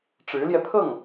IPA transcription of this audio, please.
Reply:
ʈ͡ʂ ɻ̩˧˥ l j ɛ˧ pʰ ɤ˥˩ ŋ

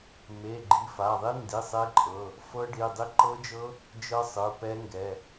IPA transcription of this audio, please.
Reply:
m e˩˧˩ ɡ͡ǃ i˩˧˩ f a˩˧˩ ðˤ i˦˥ n d i˩˧˩ sˤ e˦˥ ǃʼ ɤ˩˧˩ | f ɤ˦˥ ɖ i˩˧˩ dˤ i˦˥ ǃ ɤ˦˥ d͡ʒ ɤ˦˥ | d͡ʒ ɤ˦˥ sˤ ɯ˩˧˩ p ɛ˦˥ ŋ ɡ ɛ˩˧˩

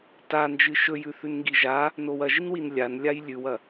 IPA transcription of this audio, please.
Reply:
t a n d͡ʒ ɨ ʃ ɵ j ʉ θ ʉ n ŋ ɡ i ʒ a | n o w ɐ ʒ i n w i n lʲ a n lʲ a j lʲ ʉ w ɐ

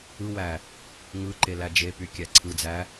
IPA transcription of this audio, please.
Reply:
ɯ w æ | ŋ ɯ ǃ e l æ d͡ʒ e p y kʲ æ ǀʰ ɯ d͡z æ

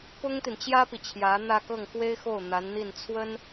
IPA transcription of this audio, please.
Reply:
p ʊ˥ ŋ t̪ i˨ n t͡ɕ j ä˥ p i˨ t͡ɕʰ j ä˧˥ n̪ ä˥˧ k ɤ˥˩ ŋ x w e˥ ɪ̯ x o˥˩ ʊ̯ n̪ a˧˥ n n̪ i˥˩ n t͡sʰ w ə˥ n

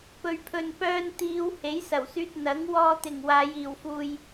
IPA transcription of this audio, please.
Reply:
p ɵ˨ ɥ pʰ ɵ˨ n p œː˧ n t̪ iː˨˧ w h e˨˥ j s ɐ˨˩ w s yː˧ t̚ n̪ ɐ˨˥ ŋ w ɔː˧ t̪ ɪ˨˩ ŋ w aː˨˧ j iː˨˩ w f uː˧ j

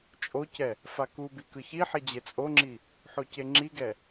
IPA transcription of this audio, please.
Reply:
t͡ʃʼ o c ɛ | f a k u b i k ɯ ç i ħ i d͡ʑ e t͡sʼ o ŋ͡ǁ i | ħ o c e ŋ͡ǁ i ɡ ɛ

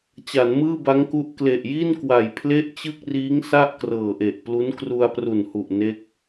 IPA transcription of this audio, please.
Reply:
t͡ɕ a˩˦ n m ɯː˥˩ b a˦˥ ŋ k u˦˥ ʔ k l e˨˩ ʔ j i˥˩ n k w a˩˦ j pʰ l e˥˩ ʔ t͡ɕ ɯ˥˩ k̚ r iː˦˥ ŋ s a˥˩ ʔ k r ɤː˨˩ ʔ e˨˩ ʔ p l u˦˥ n k r u˧ a̯ p r u˨˩ n h u˨˩ ʔ n e˦˥ k̚

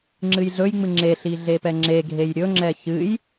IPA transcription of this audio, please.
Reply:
ŋ͡ǁ ɨ j ɮ ɵ j ŋ͡m ɨ ŋ͡ǁ e ɬ i ɮ e p ɛ ŋ͡ǁ e ɡʱ e j ɾʲ ɵ ŋ͡ǁ ɛ ç ɨ j

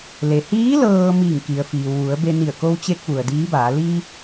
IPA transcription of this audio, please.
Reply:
l e˩ h iː˧˥ l ɤː˧ m iː˧˩ ŋ k i˩ ə̯ f iː˩ w ʋ u˩˧ ə̯ b e˧ n i˧˩ ə̯ k o˧ w t͡ɕ e˧ k̚ ʋ u˩ ə̯ d iː˧˥ b aː˩˧ l i˧

